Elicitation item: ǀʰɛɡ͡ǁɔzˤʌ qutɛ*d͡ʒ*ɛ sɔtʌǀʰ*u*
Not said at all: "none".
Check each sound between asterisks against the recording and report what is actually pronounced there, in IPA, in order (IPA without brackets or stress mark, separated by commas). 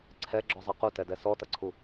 d, u